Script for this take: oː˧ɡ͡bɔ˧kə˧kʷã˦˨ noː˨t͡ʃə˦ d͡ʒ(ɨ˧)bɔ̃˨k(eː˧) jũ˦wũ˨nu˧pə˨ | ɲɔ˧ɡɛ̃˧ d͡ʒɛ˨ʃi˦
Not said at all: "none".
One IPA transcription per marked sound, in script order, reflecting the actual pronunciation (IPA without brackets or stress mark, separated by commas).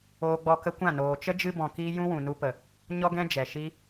ɨ˧, iː˧